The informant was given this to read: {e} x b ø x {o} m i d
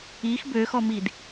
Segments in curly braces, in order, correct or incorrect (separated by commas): incorrect, incorrect